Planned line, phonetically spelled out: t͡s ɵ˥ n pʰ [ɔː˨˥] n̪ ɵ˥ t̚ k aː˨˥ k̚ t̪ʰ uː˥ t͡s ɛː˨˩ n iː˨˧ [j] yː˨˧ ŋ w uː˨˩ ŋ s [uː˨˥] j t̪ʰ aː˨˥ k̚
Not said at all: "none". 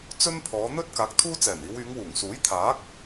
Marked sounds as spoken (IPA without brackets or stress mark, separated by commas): ɔː˨˧, w, uː˨˥